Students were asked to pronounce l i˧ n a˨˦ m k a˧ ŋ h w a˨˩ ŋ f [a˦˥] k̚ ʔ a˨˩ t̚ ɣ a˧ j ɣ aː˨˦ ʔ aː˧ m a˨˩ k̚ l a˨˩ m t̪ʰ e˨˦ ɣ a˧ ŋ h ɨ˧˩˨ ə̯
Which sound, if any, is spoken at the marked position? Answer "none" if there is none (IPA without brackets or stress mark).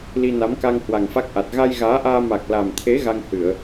a˦˥